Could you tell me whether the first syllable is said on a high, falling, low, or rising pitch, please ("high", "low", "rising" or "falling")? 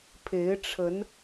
rising